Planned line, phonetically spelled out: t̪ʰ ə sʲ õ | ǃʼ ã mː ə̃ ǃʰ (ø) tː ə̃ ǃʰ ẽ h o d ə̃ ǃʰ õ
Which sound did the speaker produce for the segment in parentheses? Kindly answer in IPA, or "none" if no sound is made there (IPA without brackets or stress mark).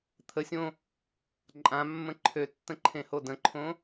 ø